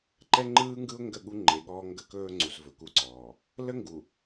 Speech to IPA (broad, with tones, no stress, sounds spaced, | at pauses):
ǃ ɛ˦ ŋ͡ǃ ɯː˦ ŋ ɡ ɯ˦ ʊ̯ ŋ ɡ ə˦˨ ɠ u˦ ŋ͡ǃ e˨ ɠ ɔː˦ ŋ ɡ ə˦ k ɵː˦ ŋ͡ǀ u˨ z v ɵ˨ k u˦ ǀ ɔː˨ | l ə˦ ŋ ɡ u˨